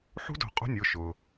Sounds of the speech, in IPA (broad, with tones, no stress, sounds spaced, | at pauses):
ħ ṳ˦˥ d o̤˨˩˦ qʼ o̤˦˥ nʲ ʊː˩˧˩ ʃ ʊː˩